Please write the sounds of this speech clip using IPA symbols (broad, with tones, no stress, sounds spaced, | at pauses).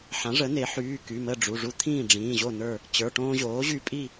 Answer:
ħ ã˩˥ ʐ ə˩˥ n̪ e˩˥ ħ yː˩˧˩ k y˩˧˩ m ə˥˨ ɖ͡ʐ u˩˧˩ ʐ u˦ t̪ʰ ĩː˥˨ ɖ͡ʐ ĩː˩˧˩ ʑ o˥˨ n ə˞˥˨ | t͡ɕ ə˞˩˧˩ ʈ õː˦ ʑ oː˩˥ ʑ y˦ pʼ i˥˨